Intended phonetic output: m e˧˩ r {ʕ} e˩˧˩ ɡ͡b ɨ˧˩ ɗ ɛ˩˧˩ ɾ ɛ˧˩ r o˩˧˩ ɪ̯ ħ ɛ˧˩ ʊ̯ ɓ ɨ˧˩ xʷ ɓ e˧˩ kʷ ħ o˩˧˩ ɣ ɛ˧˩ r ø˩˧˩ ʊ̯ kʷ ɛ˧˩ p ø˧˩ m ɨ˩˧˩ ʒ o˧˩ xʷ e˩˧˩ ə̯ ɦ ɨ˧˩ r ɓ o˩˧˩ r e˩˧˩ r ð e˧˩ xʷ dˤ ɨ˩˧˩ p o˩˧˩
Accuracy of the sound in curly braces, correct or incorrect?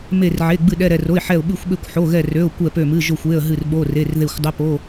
correct